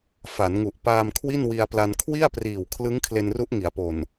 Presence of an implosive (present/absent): absent